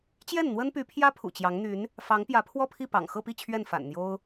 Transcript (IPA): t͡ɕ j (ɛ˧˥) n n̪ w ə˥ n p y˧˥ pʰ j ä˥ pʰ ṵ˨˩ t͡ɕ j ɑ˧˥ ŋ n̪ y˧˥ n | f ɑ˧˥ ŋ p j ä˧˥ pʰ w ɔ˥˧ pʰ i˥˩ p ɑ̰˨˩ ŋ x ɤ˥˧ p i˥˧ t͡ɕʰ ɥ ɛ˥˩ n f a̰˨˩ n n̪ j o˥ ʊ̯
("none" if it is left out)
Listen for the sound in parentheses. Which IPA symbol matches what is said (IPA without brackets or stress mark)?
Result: ɛ˥˩